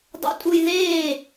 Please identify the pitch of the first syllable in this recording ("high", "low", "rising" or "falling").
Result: low